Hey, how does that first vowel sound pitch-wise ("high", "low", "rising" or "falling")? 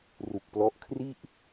low